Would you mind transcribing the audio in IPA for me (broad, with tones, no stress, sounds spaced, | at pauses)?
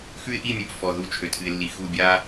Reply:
x ʉ˦ ɪ̯ ʔ i˦˨ mʲ ʉ˨ p f ɔ˨ ð u˦˨ t͡ʃʰ ø˨ tʰ ɨ˨ ɪ̯ lː i˨ x u˦˨ bʲ a˦